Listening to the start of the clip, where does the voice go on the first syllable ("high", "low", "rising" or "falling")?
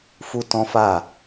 high